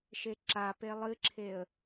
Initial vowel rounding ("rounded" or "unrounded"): unrounded